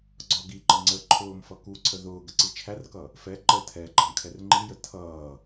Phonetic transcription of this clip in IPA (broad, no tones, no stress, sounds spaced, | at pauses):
ɡ͡ǀ ɒ ɡ i ǃ ə ŋ͡ǀ ə ǃʰ ʊː m f ʌ k u ǀʰ ə ð ʊː ɡ ə ǀ i t͡ʃʰ æ r k ʌ | f ɛ ǃ ə tʰ ɛ ɡ͡ǃ ʌ m kʰ ɛ r ŋ͡ǃ i j ə tʰ ʌː